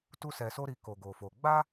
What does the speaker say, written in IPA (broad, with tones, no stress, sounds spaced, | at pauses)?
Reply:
t u˦ s ɛ˧ s o˦ ɾ i˧ k o˧ ɡ o˧ f o˧ ɡ͡b a˦